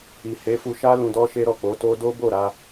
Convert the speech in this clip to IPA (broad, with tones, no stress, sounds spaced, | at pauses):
i˨ h e˨˦ f u˧ ʃ a˦ l ũ˧ d ɔ˦ ʃ e˦ ɾ ɔ˦˨ k͡p o˨˦ t o˦ d o˦ b o˦˨ ɾ a˧